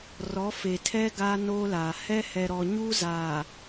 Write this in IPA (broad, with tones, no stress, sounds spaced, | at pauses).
r ɔ˨˦ f e˨ tʰ ɛ˦ ɡ a˦ n o˦ l a˨ h ɛ˦ h ɛ˨ ɾ ɔ˨ ɲ u˦ z a˨